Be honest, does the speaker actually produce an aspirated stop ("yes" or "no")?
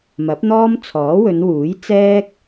yes